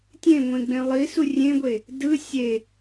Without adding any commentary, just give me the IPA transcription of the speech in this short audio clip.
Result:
tʲẽŋʷẽɡ͡bẽ lˠisu rʲẽɡʷe | dɯ sʲe

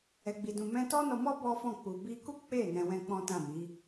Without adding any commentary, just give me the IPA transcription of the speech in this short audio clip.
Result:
ɛ˨ɡ͡bi˨dũ˨ mɛ̃˧tɔ˦nɔ˧mɔ˦ bɔ˦fɔ̃˦˨ k͡pu˨bi˧ku˦ k͡pe˦˨ nɛ̃˧wɛ̃˦k͡pɔ̃˦tã˦˨ mi˨˦

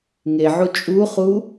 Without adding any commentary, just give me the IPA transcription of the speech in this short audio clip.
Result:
ŋeʕu t͡ʃʼuχu

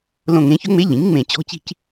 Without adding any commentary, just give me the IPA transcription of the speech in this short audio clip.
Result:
lõ˧˩ŋẽ˩˥çɵ˧˥ŋ͡me˧˥ ʎĩ˩˥ŋŋ͡mẽ˧˩ t͡ɕɔ̤˧˥t͡ɕi̤˥˧c

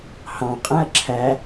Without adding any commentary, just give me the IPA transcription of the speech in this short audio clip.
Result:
hɑ̃qʼæ̃ɐ̯ ǁʰæ

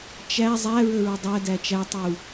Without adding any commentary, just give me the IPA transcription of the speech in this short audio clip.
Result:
t͡ʃæ zˤæɹə ɹədˤædæ t͡ʃætˤu

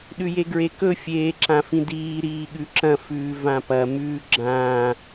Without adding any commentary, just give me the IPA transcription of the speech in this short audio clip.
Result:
ɗʉjeɡɹekɵ fʲeːǁãfĩdiː ɾiːɠʉǁɐ̃ fʉːvãpɐ mʉːɡ͡ǁã

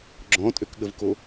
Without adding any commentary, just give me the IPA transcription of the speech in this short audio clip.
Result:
ɡ͡ǁɔ̃tʼøkɠəvko

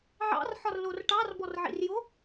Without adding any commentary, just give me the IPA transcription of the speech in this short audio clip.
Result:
ʕɑ̰rħɒrlor ʈɑrbɔrʕḭrjo

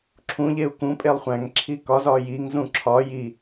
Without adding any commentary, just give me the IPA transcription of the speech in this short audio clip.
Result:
ǁʰũʎeu̯ kũpʼelˠ χʷæ̃ŋǁʰi kɒzɒ jiŋzũ ǁʰɒ ji

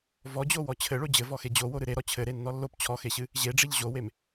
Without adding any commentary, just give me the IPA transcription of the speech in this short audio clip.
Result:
vɔd͡ʑowɔ t͡ɕʰɘɭo d͡ʑɘvɔxe d͡ʑowoɾɨ ɾeɾɔ t͡ɕʰɘɾenːɔ lːop t͡ɕʰɔxeɕɨ | ʑeɖ͡ʐeʎ ʑowem

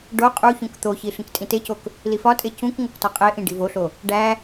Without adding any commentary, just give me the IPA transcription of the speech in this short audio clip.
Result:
ɖo qʼuçũk t̪oçi ɬĩktʼĩtecok | lifɒtʼe cũk ŋoktɒqʼeʔĩ ɖivoɬo | ɖæ

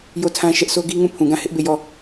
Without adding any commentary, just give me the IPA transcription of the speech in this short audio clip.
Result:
jo˦˨tʰã˦ʃɛ˦ʔ so˦ɡi˦ŋũ˦˨ pʰũ˨ɡã˦˨ hɪ˦ʔbe˦˨jɔ˦˨

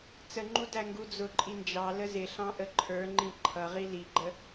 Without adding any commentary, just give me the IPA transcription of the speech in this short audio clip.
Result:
t͡səŋ͡ǃu dæŋɡud͡zʊǃʼi nd͡ʒɑ ləzɪɬɑ̃ ʔəǃʰə˞ŋ͡ǃĩ ǃʰʌʁi liɡ͡ǃə

